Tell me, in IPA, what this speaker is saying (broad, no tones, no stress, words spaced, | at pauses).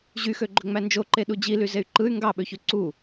ʑyxøɡ͡ǃøŋ͡mæ nd͡ʒoǃeɗu d͡ʑilyzey̯ ǃɯy̯ ŋɡɑɓøçø ǀu